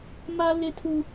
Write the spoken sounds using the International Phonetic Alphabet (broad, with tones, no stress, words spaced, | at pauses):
ma˦lɪ˦tʰu˦